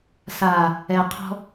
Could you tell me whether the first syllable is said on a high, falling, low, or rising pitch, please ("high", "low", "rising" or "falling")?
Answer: low